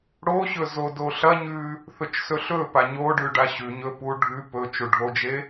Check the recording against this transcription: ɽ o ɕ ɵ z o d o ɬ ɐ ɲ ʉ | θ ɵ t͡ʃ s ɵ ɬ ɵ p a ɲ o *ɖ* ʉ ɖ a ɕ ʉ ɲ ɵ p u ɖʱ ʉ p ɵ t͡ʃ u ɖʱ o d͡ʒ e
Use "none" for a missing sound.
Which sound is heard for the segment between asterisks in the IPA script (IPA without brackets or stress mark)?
ɖ